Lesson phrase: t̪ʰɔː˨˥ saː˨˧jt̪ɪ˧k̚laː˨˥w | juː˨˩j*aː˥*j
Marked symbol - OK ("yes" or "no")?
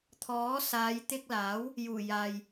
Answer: no